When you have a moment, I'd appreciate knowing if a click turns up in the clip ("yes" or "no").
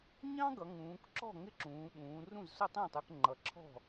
yes